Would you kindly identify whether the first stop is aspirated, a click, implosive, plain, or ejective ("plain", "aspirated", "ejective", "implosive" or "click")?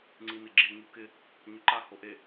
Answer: click